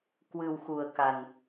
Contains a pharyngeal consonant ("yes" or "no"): no